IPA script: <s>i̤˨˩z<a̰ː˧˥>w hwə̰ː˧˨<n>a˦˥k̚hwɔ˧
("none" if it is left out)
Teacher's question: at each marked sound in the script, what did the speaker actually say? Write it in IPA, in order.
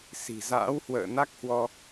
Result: s, a̰ː˧˥, n

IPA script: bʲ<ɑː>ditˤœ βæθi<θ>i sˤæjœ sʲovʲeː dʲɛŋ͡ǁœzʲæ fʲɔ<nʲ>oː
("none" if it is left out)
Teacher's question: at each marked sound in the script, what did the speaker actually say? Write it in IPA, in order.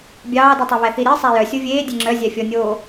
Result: ɑː, ɾ, nʲ

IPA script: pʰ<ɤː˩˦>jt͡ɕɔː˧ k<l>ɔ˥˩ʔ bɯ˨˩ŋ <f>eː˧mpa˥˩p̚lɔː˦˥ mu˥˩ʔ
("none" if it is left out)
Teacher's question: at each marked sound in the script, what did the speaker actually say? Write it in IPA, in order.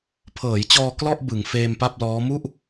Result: ɤː˩˦, l, f

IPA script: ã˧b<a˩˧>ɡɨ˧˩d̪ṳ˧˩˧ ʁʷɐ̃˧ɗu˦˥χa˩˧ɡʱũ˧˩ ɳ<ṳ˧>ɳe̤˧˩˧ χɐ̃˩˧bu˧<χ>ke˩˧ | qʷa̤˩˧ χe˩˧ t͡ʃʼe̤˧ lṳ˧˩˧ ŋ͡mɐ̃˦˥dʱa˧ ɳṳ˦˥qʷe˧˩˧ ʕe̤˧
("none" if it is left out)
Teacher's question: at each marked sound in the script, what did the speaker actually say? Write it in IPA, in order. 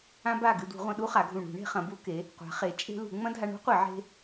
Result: a˧˩, ṳ˧˩˧, none

